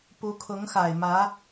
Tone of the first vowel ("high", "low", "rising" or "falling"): rising